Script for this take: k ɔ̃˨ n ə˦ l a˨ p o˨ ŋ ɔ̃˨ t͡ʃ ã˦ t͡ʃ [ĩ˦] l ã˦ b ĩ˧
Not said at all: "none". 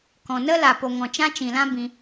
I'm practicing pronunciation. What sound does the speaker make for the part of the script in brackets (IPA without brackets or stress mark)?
ĩ˨